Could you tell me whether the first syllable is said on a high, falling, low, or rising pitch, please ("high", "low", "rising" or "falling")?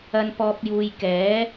low